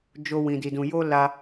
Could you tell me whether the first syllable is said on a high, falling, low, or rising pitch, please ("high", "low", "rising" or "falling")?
high